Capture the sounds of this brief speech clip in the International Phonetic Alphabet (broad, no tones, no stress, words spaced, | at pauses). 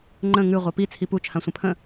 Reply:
ŋ͡ǃə̃ ŋʉ ʁʷapi t͡sʰipu t͡ʃʰãsʷə̃pʰə̃